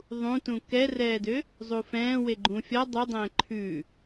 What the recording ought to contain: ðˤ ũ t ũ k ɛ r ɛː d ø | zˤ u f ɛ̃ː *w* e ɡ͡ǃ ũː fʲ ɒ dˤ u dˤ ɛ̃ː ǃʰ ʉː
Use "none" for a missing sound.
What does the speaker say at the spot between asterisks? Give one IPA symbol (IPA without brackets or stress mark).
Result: w